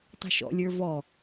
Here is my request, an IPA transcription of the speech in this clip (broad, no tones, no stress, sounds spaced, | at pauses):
tˤ i̤ ʃ ɔ̰ lʲ ə˞ v ɔ